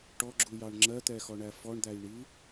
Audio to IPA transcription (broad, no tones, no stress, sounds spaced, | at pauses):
ʈ ɔ ɡ͡ǁ u j ɑ ɳ ŋ͡ǁ ɜ t̪ ɛ x ɔ ɳ æ f ɔ ɳ d̪ æ j ɳ i